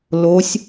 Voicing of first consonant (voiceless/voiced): voiced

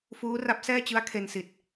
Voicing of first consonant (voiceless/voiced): voiceless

